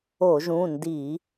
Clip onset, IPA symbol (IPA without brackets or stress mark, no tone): o